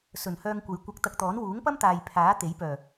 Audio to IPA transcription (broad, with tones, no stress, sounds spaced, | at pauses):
s ɵ˨˩ n h œː˧ ŋ kʷ ɐ˨˧ j kʷ ɐ˧ k̚ t̪ ɐ˧ k̚ t̪ ɔː˨˥ n w uː˨˥ ŋ p ɐ˥ m t̪ aː˨ j pʰ aː˨˥ t̪ e˨˥ j p œː˨˩